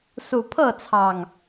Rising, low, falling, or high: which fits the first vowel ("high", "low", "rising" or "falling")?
low